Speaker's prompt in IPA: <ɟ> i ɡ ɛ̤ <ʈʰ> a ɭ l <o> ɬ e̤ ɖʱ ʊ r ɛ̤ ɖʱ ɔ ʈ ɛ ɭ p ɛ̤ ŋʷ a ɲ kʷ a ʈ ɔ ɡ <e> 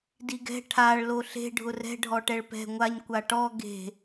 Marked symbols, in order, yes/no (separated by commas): no, yes, yes, no